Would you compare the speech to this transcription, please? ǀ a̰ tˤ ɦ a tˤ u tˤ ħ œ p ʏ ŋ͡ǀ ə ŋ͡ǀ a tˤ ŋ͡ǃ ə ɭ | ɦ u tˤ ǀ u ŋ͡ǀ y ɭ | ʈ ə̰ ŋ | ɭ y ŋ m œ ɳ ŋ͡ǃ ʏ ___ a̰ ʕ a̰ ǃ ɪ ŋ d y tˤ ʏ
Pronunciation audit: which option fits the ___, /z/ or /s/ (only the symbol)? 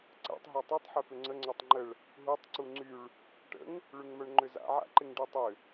z